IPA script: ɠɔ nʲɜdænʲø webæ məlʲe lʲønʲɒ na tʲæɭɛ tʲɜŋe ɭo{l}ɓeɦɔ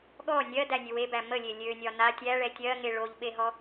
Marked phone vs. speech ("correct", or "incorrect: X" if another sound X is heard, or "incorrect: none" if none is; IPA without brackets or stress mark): incorrect: ʎ